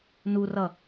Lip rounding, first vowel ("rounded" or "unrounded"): rounded